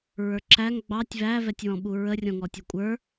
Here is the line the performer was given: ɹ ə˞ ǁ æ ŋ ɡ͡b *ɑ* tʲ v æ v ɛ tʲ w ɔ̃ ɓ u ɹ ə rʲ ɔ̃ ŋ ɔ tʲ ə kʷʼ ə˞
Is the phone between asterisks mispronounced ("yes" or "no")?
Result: no